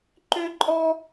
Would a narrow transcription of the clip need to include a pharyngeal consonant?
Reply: no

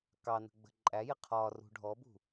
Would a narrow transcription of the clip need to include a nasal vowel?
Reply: no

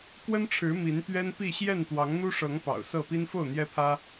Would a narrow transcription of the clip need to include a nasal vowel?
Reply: no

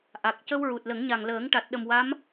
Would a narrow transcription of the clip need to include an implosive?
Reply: yes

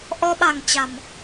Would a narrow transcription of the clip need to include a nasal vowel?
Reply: no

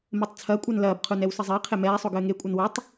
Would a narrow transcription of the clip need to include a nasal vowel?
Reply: no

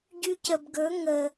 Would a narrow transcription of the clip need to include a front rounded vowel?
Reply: yes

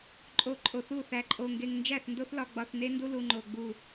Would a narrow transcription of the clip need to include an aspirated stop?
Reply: no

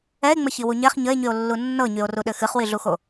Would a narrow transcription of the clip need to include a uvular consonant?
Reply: yes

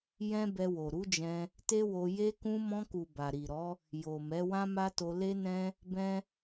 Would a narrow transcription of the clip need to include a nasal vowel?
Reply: yes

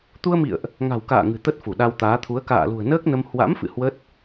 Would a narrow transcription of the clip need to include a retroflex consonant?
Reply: no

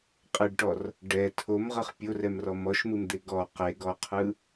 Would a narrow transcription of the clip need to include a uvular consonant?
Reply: yes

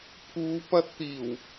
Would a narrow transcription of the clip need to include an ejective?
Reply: no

